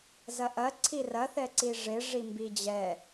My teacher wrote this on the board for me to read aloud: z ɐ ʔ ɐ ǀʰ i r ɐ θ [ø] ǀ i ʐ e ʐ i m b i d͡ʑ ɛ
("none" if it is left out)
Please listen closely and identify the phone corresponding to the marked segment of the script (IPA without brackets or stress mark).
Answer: ɛ